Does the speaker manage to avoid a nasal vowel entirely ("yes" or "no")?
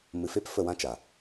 no